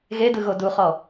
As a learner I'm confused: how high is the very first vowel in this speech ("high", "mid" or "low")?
mid